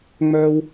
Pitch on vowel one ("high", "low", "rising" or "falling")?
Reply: high